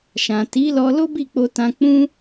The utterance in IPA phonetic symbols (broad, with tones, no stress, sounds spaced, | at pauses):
ʃ ã˨ t i˨˦ l ɔ˧ l o˦ b i˦˨ k͡p o˧ t ã˧ k͡p ũ˦